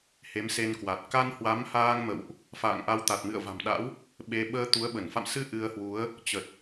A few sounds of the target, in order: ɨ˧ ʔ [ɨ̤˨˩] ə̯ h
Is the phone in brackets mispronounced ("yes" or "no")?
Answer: yes